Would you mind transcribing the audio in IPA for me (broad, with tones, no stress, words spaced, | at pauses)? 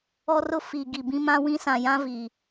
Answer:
ɔ˦rʊ˦ fi˨ ɡi˨bĩ˦ mã˦wĩ˦ sã˨jã˦vi˨